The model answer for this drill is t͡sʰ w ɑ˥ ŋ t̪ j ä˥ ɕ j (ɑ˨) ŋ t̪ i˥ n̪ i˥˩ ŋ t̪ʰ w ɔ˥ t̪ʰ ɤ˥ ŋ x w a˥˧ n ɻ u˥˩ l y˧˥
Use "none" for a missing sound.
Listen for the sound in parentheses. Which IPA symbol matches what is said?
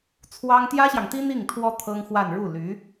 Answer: ɑ˨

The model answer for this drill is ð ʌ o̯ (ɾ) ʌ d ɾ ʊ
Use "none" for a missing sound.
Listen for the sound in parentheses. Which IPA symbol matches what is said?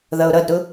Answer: ɾ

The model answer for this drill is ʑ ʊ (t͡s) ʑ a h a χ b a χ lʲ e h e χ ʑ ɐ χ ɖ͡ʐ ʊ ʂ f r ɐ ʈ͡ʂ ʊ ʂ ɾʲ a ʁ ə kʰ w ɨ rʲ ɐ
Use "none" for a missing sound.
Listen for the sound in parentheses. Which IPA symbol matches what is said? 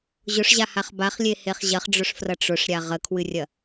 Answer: ʂ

